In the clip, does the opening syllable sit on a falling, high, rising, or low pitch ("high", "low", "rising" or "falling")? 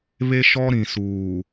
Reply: high